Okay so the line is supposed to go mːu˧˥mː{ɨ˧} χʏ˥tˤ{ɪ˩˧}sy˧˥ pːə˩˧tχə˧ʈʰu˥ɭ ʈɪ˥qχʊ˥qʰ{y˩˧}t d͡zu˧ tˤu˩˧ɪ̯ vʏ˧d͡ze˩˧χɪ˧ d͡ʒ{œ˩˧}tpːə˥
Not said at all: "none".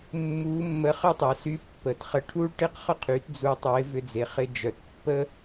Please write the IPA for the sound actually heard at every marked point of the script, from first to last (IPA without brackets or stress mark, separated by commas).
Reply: ə˧, ɛ˩˧, y˩˧, œ˩˧